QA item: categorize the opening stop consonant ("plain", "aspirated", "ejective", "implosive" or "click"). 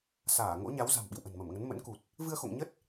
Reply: implosive